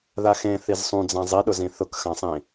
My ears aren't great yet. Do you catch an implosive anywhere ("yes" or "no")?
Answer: yes